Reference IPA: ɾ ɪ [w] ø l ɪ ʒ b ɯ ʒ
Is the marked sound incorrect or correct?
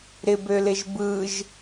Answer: incorrect